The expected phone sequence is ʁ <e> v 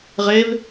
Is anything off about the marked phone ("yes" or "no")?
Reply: no